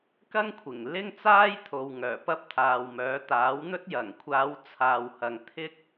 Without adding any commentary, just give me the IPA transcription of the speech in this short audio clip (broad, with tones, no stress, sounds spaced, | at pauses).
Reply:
k ɐ˥ ŋ kʷʰ ɪ˨˩ ŋ l ɪ˥ ŋ t͡s aː˥ j t̪ʰ o˨ w ŋ œː˨˩ p ɐ˥ p̚ t̪ʰ aː˨ w m œː˨˥ t̪ aː˨˥ w n̪ ɵ˥ t̚ j ɐ˨˩ ŋ kʷʰ aː˨˧ w t͡sʰ aː˨ w h ɐ˨ ŋ t̪ʰ ɪ˥ k̚